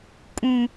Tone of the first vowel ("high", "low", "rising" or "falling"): low